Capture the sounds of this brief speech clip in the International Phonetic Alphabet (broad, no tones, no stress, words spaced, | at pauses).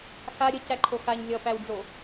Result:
xa ɾʲə cæǃʰoxaɲ lʲʌpæwɖ͡ʐo